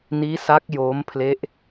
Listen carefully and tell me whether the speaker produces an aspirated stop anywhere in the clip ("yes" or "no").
yes